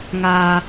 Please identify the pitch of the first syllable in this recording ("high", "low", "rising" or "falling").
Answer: low